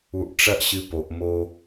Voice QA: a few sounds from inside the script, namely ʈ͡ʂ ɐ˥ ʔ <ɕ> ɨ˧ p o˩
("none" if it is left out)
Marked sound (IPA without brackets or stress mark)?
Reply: ɕ